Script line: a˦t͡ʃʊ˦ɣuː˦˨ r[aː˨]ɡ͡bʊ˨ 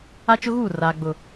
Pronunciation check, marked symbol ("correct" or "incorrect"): correct